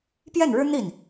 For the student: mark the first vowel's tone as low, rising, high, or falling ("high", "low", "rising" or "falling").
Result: falling